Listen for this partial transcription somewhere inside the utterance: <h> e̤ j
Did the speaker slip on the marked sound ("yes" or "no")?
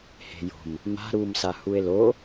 no